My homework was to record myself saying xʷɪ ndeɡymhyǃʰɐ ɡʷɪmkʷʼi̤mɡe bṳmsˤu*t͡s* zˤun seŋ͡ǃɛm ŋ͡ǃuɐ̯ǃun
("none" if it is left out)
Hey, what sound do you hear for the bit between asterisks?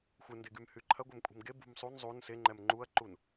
n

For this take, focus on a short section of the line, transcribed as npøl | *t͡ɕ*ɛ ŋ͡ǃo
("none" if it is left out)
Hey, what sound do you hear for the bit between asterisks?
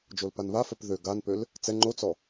t͡s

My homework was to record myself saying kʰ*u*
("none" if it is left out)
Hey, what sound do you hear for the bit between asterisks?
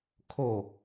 o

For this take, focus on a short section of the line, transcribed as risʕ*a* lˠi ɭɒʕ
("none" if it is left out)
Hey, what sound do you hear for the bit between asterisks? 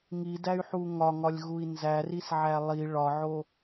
æ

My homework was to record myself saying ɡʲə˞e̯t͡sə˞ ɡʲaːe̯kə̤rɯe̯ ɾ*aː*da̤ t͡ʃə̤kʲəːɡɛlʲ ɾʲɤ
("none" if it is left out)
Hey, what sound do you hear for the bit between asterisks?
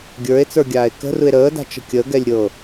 əː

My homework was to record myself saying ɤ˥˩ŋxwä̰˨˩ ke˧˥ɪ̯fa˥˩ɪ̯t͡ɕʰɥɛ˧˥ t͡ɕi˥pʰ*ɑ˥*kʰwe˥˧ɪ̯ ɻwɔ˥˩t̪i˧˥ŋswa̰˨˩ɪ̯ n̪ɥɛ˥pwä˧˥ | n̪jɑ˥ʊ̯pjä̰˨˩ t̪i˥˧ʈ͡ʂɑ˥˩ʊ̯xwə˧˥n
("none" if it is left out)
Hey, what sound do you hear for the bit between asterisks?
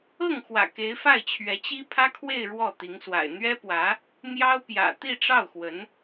ä˥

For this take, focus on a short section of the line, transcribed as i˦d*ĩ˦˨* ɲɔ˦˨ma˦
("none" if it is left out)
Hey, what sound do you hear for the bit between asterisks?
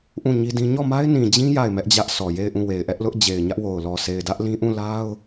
ĩ˦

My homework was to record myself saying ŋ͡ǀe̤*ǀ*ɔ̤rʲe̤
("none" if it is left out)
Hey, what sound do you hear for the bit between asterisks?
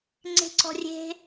ǀ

